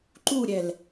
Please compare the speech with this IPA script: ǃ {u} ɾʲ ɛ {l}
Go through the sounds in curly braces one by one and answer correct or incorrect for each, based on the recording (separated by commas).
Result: correct, correct